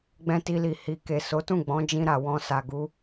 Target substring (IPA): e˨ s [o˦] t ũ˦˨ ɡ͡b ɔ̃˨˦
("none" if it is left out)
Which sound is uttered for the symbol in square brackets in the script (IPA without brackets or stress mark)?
o˨˦